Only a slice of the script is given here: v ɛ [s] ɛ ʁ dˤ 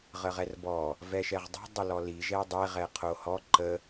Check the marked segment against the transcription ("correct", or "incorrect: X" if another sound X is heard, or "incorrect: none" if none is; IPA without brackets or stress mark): incorrect: ʃ